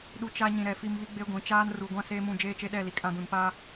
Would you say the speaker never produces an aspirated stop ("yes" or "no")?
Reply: yes